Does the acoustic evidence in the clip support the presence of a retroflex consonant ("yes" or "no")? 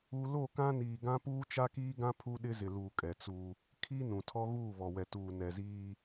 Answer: no